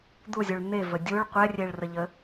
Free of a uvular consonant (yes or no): no